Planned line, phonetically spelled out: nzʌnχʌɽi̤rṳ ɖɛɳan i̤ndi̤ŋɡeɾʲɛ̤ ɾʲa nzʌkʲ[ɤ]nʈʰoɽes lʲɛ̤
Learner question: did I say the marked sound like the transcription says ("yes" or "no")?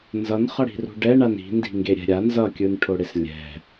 no